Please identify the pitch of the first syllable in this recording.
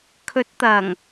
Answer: rising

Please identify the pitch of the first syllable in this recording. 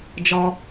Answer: high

